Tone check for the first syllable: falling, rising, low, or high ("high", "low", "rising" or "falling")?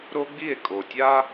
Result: high